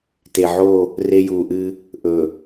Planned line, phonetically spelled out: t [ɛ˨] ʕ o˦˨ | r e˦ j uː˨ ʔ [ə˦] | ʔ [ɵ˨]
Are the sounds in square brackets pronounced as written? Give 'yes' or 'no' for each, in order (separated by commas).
no, no, yes